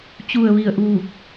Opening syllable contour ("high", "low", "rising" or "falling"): low